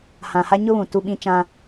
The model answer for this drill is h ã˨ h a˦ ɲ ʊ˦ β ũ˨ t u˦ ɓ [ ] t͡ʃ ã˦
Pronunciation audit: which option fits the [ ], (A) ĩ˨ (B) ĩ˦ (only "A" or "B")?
B